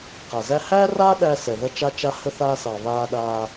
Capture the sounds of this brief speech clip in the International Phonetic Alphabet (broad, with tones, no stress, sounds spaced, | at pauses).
q a˩ z æ˧ h æː˥ r a˥ ɗ æ˧ s ɛ˩ ð ɐ˧ t͡ʃ a˧ t͡ʃ a˧ h ə˧ θ aː˧ s ɑ˩ β aː˧ ɗ aː˧